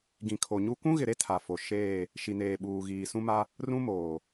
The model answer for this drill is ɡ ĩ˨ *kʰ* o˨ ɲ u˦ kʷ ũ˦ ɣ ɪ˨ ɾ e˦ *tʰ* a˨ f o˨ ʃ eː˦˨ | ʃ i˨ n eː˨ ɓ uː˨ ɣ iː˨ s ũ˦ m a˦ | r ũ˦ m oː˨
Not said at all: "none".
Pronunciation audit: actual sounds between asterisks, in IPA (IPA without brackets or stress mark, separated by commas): kʰ, tʰ